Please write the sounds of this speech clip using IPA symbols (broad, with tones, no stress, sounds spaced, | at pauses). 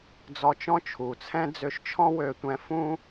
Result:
d͡z ɔ˧ t͡ʃ ɔ̃˥ t͡ʃʰ u˩ t͡sʰ ɛ̃˥ d͡z ø˧ ʃ t͡ʃʰ ɔ̃˥ w ø˧ tʷ ɛ̃˧ f ũ˥